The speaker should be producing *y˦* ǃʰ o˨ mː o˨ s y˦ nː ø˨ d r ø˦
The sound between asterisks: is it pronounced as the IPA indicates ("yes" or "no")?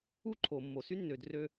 no